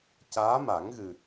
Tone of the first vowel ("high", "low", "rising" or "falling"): rising